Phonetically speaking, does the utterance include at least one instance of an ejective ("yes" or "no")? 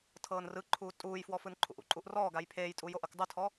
yes